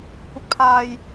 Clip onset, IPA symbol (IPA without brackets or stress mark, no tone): kʷ